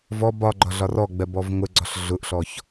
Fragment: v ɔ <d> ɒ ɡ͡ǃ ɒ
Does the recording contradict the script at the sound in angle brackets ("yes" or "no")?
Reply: yes